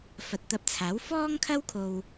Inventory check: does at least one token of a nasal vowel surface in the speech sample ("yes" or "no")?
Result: no